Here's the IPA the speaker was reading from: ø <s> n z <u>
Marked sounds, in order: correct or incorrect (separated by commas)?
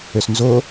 correct, incorrect